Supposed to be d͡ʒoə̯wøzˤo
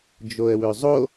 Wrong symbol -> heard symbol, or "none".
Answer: none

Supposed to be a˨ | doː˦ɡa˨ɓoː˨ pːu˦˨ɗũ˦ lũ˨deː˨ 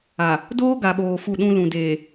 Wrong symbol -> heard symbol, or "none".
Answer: pː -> f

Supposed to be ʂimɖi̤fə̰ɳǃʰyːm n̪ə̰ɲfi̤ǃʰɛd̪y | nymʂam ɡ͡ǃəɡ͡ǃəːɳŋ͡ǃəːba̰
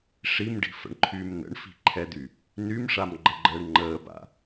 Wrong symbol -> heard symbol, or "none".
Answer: ɲ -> ɳ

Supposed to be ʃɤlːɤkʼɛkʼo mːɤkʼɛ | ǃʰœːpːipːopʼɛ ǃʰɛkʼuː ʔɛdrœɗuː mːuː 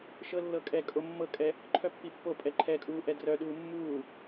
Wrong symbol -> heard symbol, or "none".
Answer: œː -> œ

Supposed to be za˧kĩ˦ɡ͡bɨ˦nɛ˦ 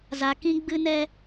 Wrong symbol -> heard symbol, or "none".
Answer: none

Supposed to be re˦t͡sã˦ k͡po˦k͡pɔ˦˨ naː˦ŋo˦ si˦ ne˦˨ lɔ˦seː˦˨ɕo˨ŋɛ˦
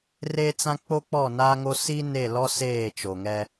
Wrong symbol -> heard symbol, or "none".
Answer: ɕ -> t͡ʃ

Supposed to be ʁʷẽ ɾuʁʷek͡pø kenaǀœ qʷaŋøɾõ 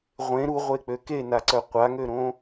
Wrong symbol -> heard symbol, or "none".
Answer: none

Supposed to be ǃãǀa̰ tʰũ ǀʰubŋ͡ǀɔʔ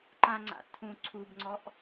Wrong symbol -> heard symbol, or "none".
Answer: ǀ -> ŋ͡ǀ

